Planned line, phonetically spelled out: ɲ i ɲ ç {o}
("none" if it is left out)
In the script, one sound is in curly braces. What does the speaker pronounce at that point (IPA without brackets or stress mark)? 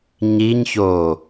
oː